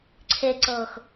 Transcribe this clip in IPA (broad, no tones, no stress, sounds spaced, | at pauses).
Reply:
ǀʰ e ǀ ɤː x